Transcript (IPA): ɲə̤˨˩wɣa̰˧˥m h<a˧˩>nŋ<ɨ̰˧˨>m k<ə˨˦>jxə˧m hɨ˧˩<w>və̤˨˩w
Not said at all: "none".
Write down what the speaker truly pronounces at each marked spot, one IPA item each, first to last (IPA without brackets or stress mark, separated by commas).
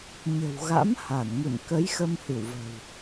a˧˩, ɨ̰˧˨, ə˨˦, w